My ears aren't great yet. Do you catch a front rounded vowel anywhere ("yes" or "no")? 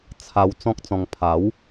no